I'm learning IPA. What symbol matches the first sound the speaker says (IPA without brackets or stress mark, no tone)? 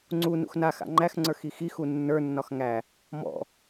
ŋ͡ǀ